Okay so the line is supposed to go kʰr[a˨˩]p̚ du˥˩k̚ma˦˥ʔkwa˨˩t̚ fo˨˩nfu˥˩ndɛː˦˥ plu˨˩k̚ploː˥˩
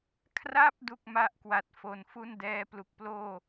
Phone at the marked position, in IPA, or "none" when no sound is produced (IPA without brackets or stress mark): a˥˩